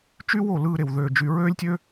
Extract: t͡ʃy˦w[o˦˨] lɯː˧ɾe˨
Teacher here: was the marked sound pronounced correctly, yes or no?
yes